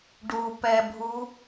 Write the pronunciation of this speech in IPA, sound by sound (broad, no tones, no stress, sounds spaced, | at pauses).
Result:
ɖ u p ɛ bʱ u